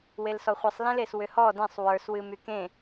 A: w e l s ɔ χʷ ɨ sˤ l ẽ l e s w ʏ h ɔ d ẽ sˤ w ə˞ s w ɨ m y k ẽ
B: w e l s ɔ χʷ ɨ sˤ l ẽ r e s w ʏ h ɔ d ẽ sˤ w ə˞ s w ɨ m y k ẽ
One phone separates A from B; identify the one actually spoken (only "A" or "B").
A